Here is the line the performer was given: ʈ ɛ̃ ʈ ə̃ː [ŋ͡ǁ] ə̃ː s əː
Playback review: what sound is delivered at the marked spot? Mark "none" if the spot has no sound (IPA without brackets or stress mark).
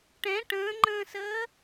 ŋ͡ǃ